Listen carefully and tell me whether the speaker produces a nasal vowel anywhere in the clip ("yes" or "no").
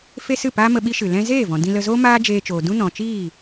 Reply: yes